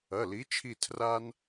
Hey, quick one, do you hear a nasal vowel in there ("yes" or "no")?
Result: no